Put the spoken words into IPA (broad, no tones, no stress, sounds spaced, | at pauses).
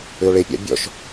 ʏ o̯ ɭ e pʲ a̰ bʲ ɔ̰ ʃ